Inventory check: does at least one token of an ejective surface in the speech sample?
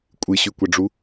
yes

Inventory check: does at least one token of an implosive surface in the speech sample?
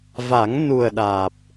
yes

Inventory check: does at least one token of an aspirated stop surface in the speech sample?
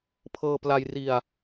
yes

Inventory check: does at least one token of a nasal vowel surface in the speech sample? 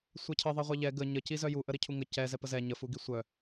no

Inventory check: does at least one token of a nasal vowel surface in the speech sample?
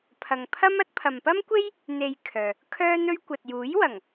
no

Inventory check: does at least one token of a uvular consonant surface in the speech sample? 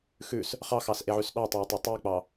yes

